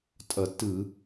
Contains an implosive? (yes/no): no